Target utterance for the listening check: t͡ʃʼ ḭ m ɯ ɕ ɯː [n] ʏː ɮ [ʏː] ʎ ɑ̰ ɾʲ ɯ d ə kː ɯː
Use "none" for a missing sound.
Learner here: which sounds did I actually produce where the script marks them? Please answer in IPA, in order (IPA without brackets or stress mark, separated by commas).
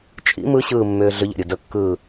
mː, ʏ